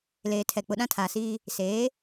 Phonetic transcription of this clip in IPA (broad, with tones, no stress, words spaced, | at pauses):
leː˨tʰɛ˨ k͡pʊ˨ɗã˦tʰaː˨siː˦ | seː˨˦